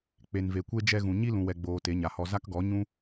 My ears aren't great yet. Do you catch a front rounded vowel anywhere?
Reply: no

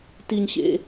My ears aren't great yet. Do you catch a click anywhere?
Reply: no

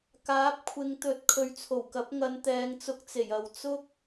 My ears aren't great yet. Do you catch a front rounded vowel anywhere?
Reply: no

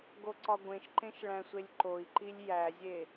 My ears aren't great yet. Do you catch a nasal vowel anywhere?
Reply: yes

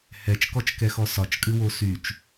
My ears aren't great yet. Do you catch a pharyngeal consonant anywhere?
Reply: no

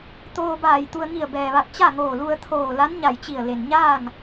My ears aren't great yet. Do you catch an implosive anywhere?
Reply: no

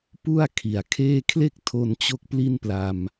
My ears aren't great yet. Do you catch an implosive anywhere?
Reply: no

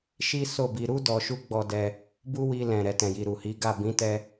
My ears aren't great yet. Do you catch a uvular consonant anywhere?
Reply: no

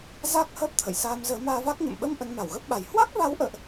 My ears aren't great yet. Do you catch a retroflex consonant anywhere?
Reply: no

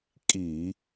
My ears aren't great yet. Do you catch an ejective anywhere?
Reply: yes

